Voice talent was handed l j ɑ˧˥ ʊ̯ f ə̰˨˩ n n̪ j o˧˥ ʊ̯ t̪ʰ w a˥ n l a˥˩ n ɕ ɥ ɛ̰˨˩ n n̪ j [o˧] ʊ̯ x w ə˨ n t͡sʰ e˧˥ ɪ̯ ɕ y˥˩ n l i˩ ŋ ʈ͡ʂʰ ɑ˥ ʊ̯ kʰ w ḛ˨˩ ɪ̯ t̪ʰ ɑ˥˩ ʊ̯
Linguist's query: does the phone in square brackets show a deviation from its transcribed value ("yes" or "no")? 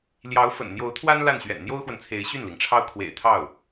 yes